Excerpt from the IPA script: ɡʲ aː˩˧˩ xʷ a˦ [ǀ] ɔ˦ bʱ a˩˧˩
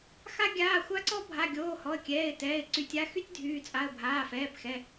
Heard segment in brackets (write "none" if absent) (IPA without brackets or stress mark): ǀ